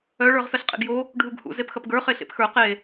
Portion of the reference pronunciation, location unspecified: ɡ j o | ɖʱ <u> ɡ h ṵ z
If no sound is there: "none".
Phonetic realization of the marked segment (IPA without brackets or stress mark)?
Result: u